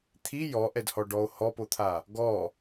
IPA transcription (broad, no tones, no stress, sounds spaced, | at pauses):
t̪ʰ i j ɔ ʔ ɛ d h ɔ ɖ ɔ o̯ h ɔ p o t̪ʰ a | ɡ ɔ